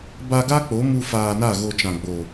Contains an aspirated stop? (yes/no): no